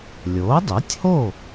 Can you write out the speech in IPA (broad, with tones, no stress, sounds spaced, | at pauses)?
lʲ o˩˥ dˤ e˩˥ tʲ h o˥˩